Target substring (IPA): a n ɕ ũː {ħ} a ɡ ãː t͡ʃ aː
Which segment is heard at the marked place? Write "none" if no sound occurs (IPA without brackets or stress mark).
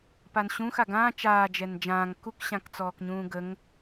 x